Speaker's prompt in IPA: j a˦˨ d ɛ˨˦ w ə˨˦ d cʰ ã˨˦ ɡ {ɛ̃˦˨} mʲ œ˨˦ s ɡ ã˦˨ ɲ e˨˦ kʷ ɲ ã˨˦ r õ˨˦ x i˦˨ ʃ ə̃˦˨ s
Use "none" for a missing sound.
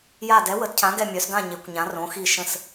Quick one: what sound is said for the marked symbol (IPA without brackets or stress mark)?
ɛ˦˨